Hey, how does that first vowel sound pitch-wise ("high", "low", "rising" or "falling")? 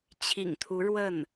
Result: low